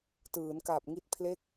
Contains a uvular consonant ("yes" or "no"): no